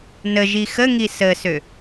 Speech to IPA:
nəʒi xəŋi səsø

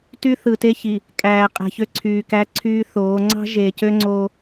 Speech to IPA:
ty˦θɯ˨te˦çi˨ | kʼæː˨qʼæ̤˨ çø˦ǀʰyː˨kæ˦ǀʰyː˦ θoː˨˦ ŋ͡ǀɑ̤˦ ʒeː˨cø˦ŋ͡ǀoː˦

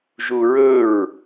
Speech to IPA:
ʒuɹɵɹ

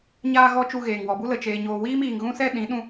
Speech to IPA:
ɲaː˧ɣɔ˧ t͡ʃu˧ɣeː˨ŋ wɔ˨bu˦lə˨ t͡ʃeː˨ ɲoː˨wiː˦miː˨ŋ ɣũ˦sɛ˦ ɗĩ˨˦ ɗũ˧

